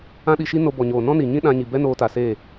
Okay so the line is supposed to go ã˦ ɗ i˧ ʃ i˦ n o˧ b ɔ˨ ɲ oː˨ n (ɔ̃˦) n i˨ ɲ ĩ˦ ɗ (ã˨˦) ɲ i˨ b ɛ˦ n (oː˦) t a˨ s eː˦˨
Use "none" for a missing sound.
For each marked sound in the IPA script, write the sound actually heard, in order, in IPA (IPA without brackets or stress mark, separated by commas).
ɔ̃˦, ã˧, oː˧